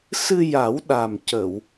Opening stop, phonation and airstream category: implosive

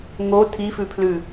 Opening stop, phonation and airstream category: aspirated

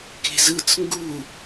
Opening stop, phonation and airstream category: plain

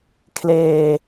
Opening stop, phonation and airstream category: aspirated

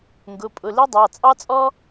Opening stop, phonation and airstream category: plain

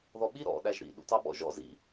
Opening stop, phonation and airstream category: implosive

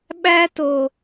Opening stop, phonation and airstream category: implosive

